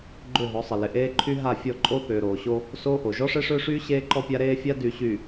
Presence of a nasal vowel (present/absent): absent